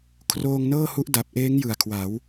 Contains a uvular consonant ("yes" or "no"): no